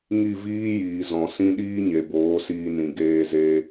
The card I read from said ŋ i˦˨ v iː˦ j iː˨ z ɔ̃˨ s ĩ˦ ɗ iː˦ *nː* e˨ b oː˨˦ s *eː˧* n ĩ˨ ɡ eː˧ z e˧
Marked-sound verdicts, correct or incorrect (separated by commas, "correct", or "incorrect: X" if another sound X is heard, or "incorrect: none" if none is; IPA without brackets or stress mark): incorrect: ɲ, incorrect: iː˧